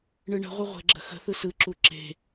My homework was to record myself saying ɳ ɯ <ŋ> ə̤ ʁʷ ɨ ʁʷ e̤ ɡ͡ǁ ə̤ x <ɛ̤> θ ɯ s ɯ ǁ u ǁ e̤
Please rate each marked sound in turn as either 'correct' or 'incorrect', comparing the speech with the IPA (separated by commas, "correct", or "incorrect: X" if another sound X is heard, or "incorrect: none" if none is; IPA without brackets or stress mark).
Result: incorrect: ɳ, incorrect: ə̤